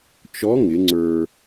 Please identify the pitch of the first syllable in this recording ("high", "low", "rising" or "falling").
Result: rising